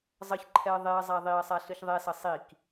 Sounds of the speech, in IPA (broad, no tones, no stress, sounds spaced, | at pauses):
zˤ ʌ ç ǃʰ ɛ ɐ̯ ðˤ e ɐ̯ zˤ a ðˤ i ɐ̯ sˤ a ɬ ɯ ç ðˤ ɛ s ʌ sˤ i k